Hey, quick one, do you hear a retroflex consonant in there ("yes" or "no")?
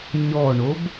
yes